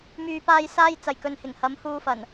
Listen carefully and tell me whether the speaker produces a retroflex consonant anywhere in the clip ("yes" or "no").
no